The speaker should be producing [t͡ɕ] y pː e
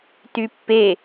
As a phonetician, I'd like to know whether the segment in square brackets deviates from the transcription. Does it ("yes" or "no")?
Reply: yes